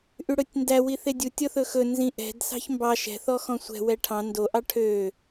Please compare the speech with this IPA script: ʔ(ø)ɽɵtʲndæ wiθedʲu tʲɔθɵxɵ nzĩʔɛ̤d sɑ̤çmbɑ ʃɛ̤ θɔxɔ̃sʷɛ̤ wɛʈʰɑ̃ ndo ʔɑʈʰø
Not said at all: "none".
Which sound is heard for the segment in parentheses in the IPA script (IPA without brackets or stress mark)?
y